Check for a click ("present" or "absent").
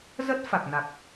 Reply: absent